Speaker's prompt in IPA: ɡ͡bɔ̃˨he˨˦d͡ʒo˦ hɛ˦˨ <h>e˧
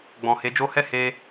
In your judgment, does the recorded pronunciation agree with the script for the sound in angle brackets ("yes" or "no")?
yes